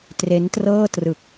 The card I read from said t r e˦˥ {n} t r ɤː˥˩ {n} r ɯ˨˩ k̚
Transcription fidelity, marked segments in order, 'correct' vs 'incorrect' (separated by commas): correct, incorrect